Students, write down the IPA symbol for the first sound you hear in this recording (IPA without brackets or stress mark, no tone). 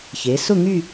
ç